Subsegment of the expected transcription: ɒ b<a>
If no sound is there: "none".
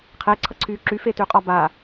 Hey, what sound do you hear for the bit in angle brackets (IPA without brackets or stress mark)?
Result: a